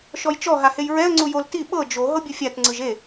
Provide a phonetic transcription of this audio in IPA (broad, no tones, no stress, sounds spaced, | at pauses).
ʃ ɔ j t͡ʃ ɔ ɦ a h e j ɹ ɛ ə̯ ŋ͡ǀ u j o l t i ɓ ɤ d͡ʒ o ɦ ɤ bʲ u fʲ a t ŋ͡ǀ ɯ ʒ e